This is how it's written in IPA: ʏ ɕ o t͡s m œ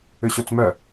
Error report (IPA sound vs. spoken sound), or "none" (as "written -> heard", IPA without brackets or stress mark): none